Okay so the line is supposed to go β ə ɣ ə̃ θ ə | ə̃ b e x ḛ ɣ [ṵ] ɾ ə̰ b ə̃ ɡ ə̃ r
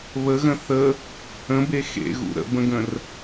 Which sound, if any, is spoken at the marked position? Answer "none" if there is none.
ṵ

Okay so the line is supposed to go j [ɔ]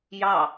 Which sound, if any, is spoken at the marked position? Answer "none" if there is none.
ɑ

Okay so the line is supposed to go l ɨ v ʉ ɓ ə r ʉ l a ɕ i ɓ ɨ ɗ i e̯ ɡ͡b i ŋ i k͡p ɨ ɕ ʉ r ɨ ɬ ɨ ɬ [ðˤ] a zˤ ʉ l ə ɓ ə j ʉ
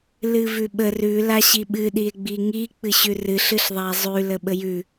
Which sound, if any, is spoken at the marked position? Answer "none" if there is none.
ðˤ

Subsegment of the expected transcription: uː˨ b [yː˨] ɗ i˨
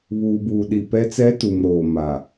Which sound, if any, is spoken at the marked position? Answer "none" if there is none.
uː˨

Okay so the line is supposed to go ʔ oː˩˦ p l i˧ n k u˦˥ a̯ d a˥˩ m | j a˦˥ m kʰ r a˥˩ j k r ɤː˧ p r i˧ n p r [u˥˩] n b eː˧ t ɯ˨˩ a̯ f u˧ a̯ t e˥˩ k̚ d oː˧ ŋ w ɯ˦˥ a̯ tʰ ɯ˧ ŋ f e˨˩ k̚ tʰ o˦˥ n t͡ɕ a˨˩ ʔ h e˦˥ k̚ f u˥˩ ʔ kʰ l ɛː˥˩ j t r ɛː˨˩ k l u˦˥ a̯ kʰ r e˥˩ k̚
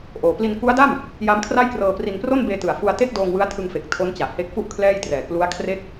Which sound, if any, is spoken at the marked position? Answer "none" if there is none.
o˥˩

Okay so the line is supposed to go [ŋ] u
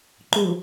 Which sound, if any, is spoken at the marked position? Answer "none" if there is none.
ǃ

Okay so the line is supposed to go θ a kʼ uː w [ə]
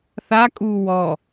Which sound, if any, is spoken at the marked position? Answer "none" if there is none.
ɔ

